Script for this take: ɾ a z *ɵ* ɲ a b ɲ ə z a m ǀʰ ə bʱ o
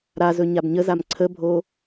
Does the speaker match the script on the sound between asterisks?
yes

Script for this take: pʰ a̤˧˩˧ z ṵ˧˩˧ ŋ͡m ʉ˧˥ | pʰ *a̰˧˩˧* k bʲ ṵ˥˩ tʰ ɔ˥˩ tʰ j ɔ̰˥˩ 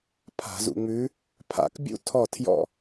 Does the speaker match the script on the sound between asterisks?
yes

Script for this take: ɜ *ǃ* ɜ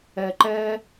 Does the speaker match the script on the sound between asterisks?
yes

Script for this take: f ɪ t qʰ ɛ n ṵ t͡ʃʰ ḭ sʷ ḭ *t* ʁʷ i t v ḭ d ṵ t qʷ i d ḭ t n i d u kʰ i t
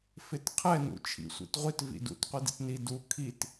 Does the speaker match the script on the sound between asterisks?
yes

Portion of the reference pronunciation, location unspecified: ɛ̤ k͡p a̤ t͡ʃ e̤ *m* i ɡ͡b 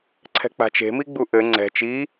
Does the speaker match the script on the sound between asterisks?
yes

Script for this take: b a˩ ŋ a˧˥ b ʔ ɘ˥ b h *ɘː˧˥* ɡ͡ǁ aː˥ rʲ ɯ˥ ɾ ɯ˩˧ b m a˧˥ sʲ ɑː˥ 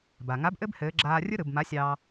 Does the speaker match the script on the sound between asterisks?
yes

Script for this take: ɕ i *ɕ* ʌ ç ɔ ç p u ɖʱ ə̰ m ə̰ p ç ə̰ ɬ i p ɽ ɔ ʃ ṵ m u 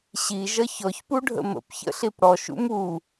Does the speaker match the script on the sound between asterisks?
no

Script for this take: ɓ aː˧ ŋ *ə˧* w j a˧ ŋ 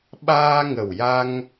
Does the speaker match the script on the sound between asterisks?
no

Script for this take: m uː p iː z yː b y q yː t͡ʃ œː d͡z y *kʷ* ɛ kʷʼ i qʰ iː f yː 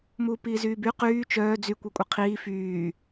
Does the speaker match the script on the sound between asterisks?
yes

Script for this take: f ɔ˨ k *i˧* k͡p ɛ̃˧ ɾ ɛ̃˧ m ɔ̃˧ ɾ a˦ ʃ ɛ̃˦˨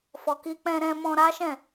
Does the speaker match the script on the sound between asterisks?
yes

